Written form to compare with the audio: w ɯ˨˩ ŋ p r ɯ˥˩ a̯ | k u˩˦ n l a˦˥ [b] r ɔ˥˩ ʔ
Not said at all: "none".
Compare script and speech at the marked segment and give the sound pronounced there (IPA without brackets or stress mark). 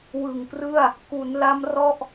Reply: m